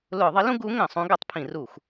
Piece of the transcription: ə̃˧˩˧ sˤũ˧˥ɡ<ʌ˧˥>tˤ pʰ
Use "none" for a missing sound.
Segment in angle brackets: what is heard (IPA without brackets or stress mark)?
ʌ˧˥